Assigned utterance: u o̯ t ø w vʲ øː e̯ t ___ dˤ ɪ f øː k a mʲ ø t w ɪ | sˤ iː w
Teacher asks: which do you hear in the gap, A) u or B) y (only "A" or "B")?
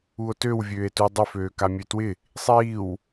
A